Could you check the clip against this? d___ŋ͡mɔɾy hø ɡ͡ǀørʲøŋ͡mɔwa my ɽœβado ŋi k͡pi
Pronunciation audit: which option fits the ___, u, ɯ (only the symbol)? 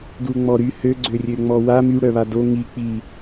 u